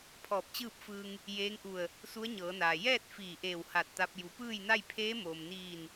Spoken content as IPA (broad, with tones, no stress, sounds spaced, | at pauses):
pʰ ɔː˧˩ p̚ t͡ɕ ɯː˥˨ p̚ f ɯː˧ ŋ | j eː˧˥ ŋ ʔ u˧˩ ə̯ | s u˧˥ ə̯ ɲ ɤː˩˧ n aː˩ j ɛː˥˨ t̚ f iː˧˩ ʔ eː˧˩ w h a˧˩ t̚ t̪ a˧ p̚ j u˩˧ p ɯː˥˨ j n a˥˨ j pʰ eː˧˥ m oː˩ m n iː˧˩ n